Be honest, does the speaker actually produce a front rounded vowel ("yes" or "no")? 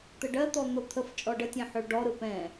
yes